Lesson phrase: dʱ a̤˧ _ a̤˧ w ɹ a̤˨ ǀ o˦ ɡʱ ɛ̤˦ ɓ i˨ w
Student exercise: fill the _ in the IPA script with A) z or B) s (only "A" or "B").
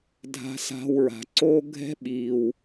B